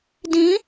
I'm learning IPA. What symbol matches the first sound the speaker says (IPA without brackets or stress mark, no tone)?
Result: d